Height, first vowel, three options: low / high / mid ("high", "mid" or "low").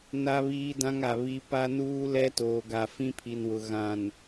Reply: low